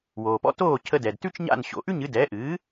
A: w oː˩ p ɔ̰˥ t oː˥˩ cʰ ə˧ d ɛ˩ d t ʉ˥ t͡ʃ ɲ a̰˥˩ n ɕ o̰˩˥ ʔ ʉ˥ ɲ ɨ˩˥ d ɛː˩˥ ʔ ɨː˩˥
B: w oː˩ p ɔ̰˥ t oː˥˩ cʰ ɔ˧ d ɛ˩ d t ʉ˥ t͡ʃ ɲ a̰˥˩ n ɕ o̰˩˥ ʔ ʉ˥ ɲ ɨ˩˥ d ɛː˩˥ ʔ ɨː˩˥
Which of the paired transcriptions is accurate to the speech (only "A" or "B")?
A